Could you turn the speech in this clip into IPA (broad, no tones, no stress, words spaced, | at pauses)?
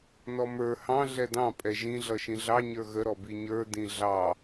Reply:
nɔmə˞ hɑ̃ ɮɛdɑ̃ pʼɛʒĩɮʌ ʃĩɮɑ ɲə˞ɣəɾɔ biɲə˞dĩ ɮɑ